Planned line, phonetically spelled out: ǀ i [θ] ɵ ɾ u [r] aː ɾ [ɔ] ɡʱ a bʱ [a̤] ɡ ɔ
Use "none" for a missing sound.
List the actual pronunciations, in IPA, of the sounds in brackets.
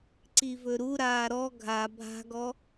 v, ɾ, ɔ, a̤

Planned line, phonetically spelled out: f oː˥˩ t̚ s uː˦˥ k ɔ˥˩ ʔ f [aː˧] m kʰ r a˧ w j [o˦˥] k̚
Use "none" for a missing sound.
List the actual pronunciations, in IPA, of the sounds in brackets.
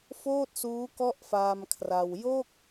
aː˧, o˥˩

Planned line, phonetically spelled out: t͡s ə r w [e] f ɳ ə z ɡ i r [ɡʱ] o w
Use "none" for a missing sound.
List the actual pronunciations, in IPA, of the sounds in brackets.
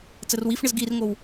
i, ŋ

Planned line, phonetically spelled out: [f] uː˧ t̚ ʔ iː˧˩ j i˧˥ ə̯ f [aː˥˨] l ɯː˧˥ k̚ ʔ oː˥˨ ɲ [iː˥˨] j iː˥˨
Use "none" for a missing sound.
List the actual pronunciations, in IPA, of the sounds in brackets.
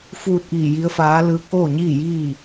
f, aː˧˥, iː˥˨

